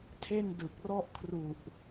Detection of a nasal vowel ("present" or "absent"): absent